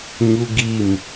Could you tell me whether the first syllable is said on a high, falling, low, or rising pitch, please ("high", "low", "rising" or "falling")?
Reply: high